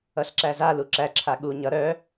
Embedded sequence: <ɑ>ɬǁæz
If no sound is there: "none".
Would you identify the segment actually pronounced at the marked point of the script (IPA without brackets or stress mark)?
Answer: ʌ